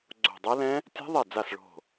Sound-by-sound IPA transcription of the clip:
ɡ͡ǀ o̤˧˩ dˤ ɛ˦˥ l ɛ̃˦˥ | tʲ a̤˦˥ ðˤ e˧˩ d͡z a˧˩ s ɭ o̤˧˩

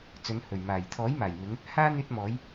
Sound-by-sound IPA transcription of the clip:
t͡s ɵ˨˧ n h ɵ˨˩ ɥ m aː˨˩ j t̪ʰ ɔː˨˥ j m aː˨˩ j m ɪ˨˧ ŋ | h aː˥ n̪ yː˧ t̚ m ɔː˨˧ j

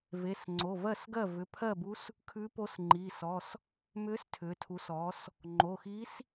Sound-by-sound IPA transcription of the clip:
v e˩˧˩ s ŋ͡ǀ o˩˧˩ v ɜ˥˩ s ɡ ɜ˥˩ v ʏ˩˧˩ pʰ ɜ˥˩ b u˧˥ s | kʰ ʉ˧˥ p o˧˥ s ŋ͡ǃ iː˩˧˩ s ɔ˩˧˩ s | m ʏː˧˥ s tʰ ʏː˩˧ tʰ u˩˧ s ɔː˩˧ s | ŋ͡ǃ o˩˧˩ x i˧˥ s

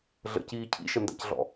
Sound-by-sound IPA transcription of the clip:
ɮ ə̰ c iː cʰ ḭ ʃ ə n d a̰ c ɮ ɔ̰

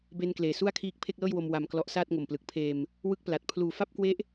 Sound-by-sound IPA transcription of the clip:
b e˧ n k l eː˩˦ s u˥˩ a̯ kʰ iː˦˥ k̚ pʰ e˥˩ k̚ l ɤː˥˩ j w o˧ m w a˧ m k l ɔ˦˥ ʔ s aː˥˩ t̚ ŋ o˨˩ m p l ɯ˨˩ k̚ pʰ eː˧ m | w ɯ˥˩ k̚ p l a˨˩ t̚ pʰ l uː˨˩ f a˥˩ p̚ k w e˦˥ ʔ

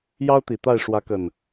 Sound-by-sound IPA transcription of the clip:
j ɑ˦ ʊ̯ t̪ i˨˩ t̪ a˥˨ ɪ̯ ʂ w ä˨˦ k ə˨˩ n

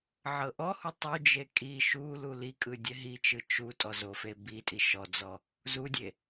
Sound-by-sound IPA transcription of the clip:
ʕ ɤ ʔ ɔ h u tˤ u d͡ʒ e kʼ i ʃ u l u l i kʼ ɯ dʲ ɛ ɦ i t͡ʃ ɯ t͡ʃ u tʼ ɔ z o f e b i tʼ i ʃ ɔ d͡z ɔ | z u dʲ e

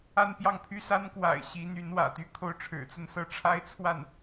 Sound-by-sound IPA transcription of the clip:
a˥˧ n p j ɑ˥˩ ŋ pʰ y˥ s a˥ n k w a̰˨˩ ɪ̯ ɕ i˧˥ n̪ y˧˥ n w ä̰˨˩ t̪ y˥ kʰ o˥˩ ʊ̯ ʈ͡ʂʰ ɻ̩˨˩ t͡s ə˥˧ n s ɤ˥˩ ʈ͡ʂʰ a˥ ɪ̯ t͡sʰ w a˥˩ n

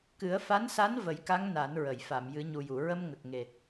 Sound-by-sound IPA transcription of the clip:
k ɨ˨˩˦ ə̯ f a˧˥ n s a˧˥ n v ə˨˩˦ j k a˧˥ ŋ n a˨˩˦ n ɹ ə˨˩˨ j f a˨˩˨ m j ɨ˨˩˦ ɲ u˨˩ j u˨˩˨ ɹ ə˧ m ŋ ə˨˩ k̚ ŋ e˨˩

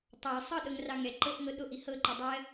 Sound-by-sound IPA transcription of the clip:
tˤ ɑ sˤ ɤ ɗ ɤ ŋ r ɑ ŋ ɛ ǃ ɤ ʔ ŋ ɤ ɗ o ʔ i h ɤ ǃ ə dˤ ɜ

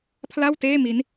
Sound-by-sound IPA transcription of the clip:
pʰ l a˥˩ w t eː˥˩ m i˦˥ n

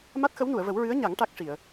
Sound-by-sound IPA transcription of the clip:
m a˦˥ t̚ x ə˧˥ w n u˨˩˨ ə̯ v ə˨˩˦ w ɹ ɨ˧˥ ə̯ ɲ a˨˩˦ ŋ ʈ a˦˥ k̚ ʂ i˨˩˨ ə̯

